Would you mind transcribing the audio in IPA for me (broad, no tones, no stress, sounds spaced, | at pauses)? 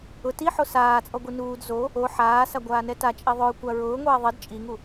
ʊ t i ħ o s aː t͡sʼ ɔ ɡʷ i n uː d z o | o ħ aː s a ɡʷ aː n ɛ t a t͡ʃʼ e ðˤ o ɹ kʷ a ɹ ʊː ŋʷ ɛː ðˤ ɪ d t͡ʃʼ i ŋ u